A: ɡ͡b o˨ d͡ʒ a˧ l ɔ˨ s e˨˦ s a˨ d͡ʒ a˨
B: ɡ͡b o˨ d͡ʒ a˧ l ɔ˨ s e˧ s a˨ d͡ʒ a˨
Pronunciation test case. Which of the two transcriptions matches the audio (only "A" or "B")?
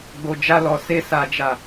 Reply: B